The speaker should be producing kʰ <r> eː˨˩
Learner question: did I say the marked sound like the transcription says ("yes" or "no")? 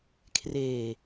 yes